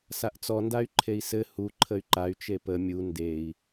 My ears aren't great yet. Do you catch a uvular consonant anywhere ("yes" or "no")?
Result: no